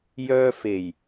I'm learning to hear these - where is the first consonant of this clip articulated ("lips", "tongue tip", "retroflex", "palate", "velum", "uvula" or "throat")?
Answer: palate